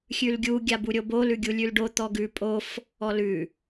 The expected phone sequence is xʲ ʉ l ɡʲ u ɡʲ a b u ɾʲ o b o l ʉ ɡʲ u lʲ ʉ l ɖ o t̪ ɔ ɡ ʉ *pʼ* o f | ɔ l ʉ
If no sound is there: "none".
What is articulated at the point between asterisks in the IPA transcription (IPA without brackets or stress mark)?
pʼ